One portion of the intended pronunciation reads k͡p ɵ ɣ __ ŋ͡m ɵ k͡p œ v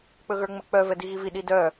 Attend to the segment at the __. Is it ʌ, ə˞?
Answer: ə˞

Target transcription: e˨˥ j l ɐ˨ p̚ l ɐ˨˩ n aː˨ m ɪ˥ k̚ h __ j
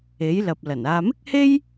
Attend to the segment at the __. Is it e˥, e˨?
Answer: e˥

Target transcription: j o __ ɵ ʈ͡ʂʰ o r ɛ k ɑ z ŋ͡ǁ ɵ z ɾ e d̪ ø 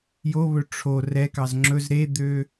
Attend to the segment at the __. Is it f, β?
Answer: β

